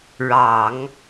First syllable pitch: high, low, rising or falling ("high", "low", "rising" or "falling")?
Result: low